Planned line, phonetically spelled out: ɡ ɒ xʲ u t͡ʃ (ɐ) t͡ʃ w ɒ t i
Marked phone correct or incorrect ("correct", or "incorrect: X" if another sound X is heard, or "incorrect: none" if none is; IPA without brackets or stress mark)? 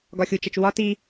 correct